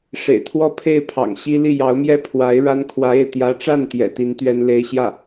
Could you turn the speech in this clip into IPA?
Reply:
ʂḛ˨˩ɪ̯t̪ʰwɔ˥˧pʰe˥˩ɪ̯pʰɑ̰˨˩ŋ ɕi˥ li˥˩jɑ˧˥ʊ̯mjɛ˥˩ pʰwa˧˥ɪ̯ ɻa˥n kʰwä˧˥e˥˩ɪ̯ t̪jä˧˥ʈ͡ʂa˥˩n t̪jɛ̰˨˩t̪i˧˥n t̪ɥɛ˥nle˥ɪ̯ɕjä˥˩

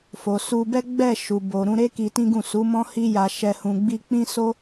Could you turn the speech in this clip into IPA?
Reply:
fo˨su˧bɛ˦ ɡ͡bɛ˦˨ ʃu˨ bo˨ɾũ˧ɾe˦ ki˧tĩ˦ɡũ˦˨ su˨˦mɔ̃˦hi˦ja˧ ʃɛ˧hũ˧ɡ͡bi˦ k͡pĩ˦so˦

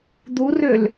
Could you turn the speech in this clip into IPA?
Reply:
d̪urøl

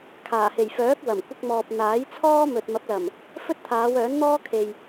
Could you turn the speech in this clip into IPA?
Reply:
kʰaː˨˩he˨˩jfœː˨˥k̚ wɐ˨˩mkʷɪ˧k̚mɔː˨p̚ n̪aː˨˥jt͡sʰɔː˥ mɵ˨t̚mɐ˨˥p̚lɐ˨˩m | fɵ˥t̚t̪ʰaː˨˧wœː˨˥n n̪ɔː˥kʰe˨j

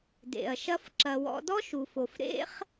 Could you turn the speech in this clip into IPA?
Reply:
dḛ˨ɐ̯ʃɐ˦f ǁɐ˧wɔ̰˦ dɔ˦ʃu˨fo˨f ɾḛ˦χ

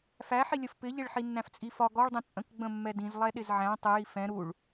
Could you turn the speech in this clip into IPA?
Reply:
fæħilʲəf pɪʎɪɭ ħinːæ̃ft͡sʼifɒ ɡɔɭdˤĩ t͡sʼə̃kɡ͡bə̃ mːɛdĩzlˠɛ ɗɪzʕæ̃ tˤɪji fɛ̃ ɾuɭ

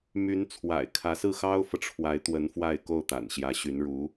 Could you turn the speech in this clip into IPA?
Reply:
my˧˥nt͡sʰwa̰˨˩ɪ̯ kʰä˧˥sɹ̩˥˩ xɑ˥ʊ̯fɤ˨ʈ͡ʂʰwa˧˥ɪ̯ t̪wə˧˥n fwa˥˧ɪ̯ ko˥˩ʊ̯t̪a̰˨˩nɕjä˧˥ɕy˧˥n ɻu˧˥

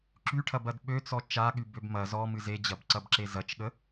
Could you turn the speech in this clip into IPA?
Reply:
ǁyʈʰɐbɐd ɓøt͡sɔ t͡ʃaɠybøb mɐ zɔmɨ zed͡ʑɐbǀɐbǁe zɐt͡ʃɠə

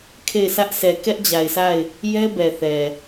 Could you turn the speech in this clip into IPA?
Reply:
kʰe˦˨ɪ̯sä˦ʔ sɛ˨ kɛ˦ʔd͡ʑa˨ɪ̯sʰa˦˨ɪ̯ | jɛ˦bɛ˨θɛ˨

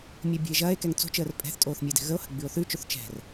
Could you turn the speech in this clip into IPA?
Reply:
mʲəːbʲo̤e̯ʒɐːe̯kɛŋ t͡so̤t͡ʃəːr pʼɛ̤θtʼoːθ mʲəːdɛ̤ɣəo̯hə̤ ɡ͡bʉo̯θʉt͡ʃoθ t͡ʃɛ̤r

